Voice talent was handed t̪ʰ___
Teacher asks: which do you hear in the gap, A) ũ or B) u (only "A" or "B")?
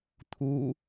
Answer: B